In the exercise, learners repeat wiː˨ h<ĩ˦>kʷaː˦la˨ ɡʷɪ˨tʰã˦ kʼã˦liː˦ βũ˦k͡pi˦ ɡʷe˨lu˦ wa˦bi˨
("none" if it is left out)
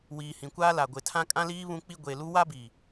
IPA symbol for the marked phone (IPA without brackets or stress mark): ĩ˨